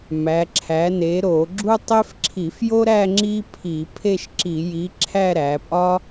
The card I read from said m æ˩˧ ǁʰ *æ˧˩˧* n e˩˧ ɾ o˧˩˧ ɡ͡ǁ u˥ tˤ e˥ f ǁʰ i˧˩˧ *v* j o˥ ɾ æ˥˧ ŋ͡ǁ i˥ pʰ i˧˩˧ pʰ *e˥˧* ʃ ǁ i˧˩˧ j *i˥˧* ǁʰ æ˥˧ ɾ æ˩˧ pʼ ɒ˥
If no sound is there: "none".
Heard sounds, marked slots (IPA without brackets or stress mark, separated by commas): æ˩˧, f, e˥˧, i˨˥